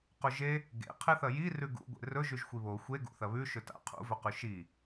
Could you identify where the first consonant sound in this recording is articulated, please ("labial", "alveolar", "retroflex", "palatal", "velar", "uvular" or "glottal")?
uvular